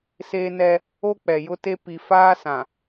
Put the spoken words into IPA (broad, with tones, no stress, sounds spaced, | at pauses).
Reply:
s eː˦ n ɛ˦ | o˦ k͡p ɛ˨ j ʊ˦ t e˦ p i˨ f aː˦ s ã˨